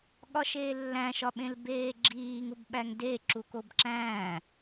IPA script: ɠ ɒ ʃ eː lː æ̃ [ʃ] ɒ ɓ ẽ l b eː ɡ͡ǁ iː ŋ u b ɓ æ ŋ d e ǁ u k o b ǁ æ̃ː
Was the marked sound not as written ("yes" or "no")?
no